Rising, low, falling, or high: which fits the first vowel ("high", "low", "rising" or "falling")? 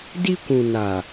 high